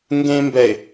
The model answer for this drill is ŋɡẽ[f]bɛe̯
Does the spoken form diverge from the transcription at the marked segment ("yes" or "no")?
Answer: yes